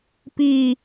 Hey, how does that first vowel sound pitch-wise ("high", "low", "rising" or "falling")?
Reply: falling